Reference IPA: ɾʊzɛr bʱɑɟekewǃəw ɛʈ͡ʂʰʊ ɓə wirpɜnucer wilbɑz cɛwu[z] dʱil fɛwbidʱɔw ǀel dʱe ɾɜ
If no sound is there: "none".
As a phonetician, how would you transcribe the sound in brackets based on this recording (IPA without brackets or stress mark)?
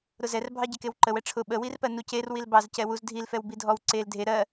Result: z